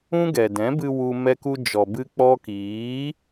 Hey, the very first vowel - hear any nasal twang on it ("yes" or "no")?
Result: yes